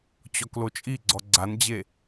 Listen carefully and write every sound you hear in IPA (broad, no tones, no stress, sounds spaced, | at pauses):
t͡ɕ ɔ k l o t͡ʃʼ i ɡ͡ǀ ɔ ɡ͡ǀ a n d͡ʑ e